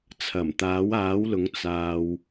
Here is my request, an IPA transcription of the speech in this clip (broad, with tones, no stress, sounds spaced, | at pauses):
t͡sʰ ɐ˨˩ m t̪ aː˨˥ w aː˨˥ w l ʊ˨˥ ŋ t͡s aː˨ w